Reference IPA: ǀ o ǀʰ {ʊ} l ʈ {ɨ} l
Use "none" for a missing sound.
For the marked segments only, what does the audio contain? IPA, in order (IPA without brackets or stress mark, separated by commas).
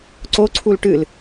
u, ɨ